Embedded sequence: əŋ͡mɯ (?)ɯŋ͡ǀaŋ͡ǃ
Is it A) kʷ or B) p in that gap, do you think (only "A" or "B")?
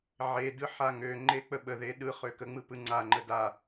B